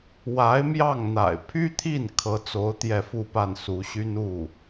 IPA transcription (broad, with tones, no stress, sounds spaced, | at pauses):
w a˧˥ ɪ̯ m j ɑ˥˩ ŋ n̪ a̰˨˩ ɪ̯ pʰ y˥ t̪ʰ i˥˩ n kʰ ɤ˧˥ t͡s o˧˥ ʊ̯ t̪ j ɛ˥˧ f u˥˧ p a˥˩ n s u˧˥ ɕ y˥ n u˥˩